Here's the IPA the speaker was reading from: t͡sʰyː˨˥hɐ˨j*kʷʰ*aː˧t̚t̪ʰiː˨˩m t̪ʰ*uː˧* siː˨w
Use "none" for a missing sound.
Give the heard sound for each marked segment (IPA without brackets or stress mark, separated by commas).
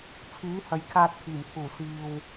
kʰ, uː˨˩